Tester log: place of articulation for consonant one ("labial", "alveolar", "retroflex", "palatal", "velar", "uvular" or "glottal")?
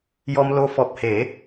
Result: palatal